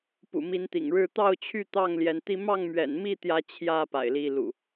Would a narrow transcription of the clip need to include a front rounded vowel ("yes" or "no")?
yes